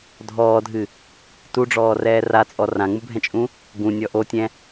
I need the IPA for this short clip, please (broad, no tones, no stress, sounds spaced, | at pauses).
dʱ ɔː dʱ ɨ | t u ɖ͡ʐ ɔː r ɛː r a t͡sʼ ɔ r ã ŋ͡m u bʱ ɛ̃ t͡ʃʼ ũ | ɡ ũ nʲ ɔ ʔ o tʲ ɛ̃